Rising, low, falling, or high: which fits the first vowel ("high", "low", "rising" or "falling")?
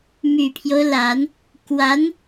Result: low